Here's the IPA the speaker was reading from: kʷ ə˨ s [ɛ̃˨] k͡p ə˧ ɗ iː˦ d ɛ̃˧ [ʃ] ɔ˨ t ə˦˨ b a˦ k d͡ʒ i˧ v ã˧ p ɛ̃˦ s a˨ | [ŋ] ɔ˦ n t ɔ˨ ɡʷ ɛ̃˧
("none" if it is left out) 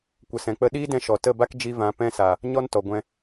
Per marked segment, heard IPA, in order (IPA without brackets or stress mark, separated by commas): ɛ̃˨, ʃ, ɲ